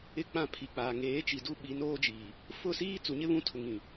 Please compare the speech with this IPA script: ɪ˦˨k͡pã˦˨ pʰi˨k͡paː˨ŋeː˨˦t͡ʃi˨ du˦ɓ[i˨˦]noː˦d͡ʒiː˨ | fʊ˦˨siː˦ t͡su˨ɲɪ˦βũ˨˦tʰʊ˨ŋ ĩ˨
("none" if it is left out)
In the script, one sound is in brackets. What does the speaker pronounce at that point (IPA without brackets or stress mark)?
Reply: i˨˦